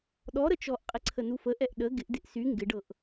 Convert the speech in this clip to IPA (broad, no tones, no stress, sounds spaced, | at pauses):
ɗ ɔ ɾ ə t͡ʃ ɔ ʔ qʼ ɪ ǀʰ ə n u f ə ʔ ɛ ʔ ɗ ə ɡ ɪ ʔ d ɪ ʔ s y ŋ ɡ ɪ ɖ ɤ ʔ